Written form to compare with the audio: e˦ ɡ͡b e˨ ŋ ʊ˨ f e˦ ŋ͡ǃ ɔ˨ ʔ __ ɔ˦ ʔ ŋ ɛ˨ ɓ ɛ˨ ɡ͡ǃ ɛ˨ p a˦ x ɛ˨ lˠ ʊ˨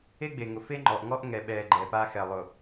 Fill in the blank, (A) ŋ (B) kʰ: A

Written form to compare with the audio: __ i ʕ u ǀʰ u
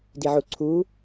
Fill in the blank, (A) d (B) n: A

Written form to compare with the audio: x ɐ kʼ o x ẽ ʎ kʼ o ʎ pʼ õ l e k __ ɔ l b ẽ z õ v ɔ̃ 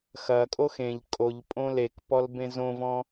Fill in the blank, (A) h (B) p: B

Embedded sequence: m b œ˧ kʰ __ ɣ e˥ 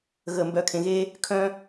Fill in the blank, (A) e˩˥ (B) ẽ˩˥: B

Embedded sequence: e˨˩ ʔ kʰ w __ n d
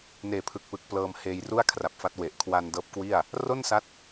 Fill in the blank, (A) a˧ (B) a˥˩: A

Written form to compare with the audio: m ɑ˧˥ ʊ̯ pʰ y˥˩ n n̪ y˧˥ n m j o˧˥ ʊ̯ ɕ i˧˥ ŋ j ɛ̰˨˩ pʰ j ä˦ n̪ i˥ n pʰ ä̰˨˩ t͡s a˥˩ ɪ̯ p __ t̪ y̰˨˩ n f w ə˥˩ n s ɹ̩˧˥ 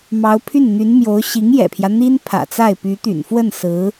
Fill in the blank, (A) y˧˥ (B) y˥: A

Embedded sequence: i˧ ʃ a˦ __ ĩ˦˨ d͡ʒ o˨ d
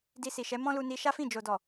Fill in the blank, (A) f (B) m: A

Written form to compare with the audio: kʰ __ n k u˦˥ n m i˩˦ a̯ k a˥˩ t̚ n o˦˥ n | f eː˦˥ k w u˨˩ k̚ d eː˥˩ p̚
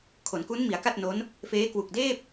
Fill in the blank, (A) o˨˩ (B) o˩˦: B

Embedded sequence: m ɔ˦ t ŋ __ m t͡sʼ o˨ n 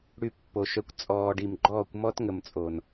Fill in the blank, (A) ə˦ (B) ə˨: B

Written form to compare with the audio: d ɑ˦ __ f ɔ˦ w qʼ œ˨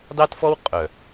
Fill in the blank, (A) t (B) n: A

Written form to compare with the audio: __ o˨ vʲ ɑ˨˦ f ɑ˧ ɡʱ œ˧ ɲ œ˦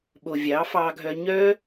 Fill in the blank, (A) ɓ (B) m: A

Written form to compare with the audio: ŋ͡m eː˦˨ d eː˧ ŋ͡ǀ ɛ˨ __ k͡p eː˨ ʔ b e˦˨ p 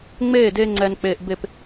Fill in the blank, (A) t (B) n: B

